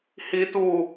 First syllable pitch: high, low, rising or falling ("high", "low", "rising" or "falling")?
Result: high